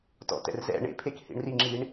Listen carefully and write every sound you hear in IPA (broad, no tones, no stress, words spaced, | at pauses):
tɔ̰tɛ̰rzɛ̰ ɳḛpʰek hḭɳriŋ͡ǁiɳ